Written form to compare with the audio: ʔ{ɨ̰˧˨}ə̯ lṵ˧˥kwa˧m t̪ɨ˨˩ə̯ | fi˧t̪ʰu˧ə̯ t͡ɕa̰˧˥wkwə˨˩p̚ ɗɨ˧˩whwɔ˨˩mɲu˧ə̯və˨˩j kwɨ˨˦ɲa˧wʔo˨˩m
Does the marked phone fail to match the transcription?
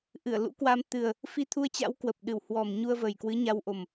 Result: yes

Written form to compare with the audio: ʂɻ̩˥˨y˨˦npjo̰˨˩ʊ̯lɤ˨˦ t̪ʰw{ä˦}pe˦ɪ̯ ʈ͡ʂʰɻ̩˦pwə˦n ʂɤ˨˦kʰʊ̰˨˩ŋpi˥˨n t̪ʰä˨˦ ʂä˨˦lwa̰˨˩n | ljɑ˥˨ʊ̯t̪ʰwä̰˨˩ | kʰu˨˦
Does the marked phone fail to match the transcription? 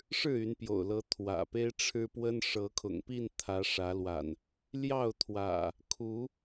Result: yes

